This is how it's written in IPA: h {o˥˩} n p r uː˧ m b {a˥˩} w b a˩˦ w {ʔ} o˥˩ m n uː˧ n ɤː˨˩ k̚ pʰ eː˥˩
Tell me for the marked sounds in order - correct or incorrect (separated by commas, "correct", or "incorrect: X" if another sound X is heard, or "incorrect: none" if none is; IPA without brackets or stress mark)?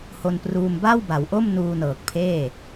incorrect: o˧, correct, correct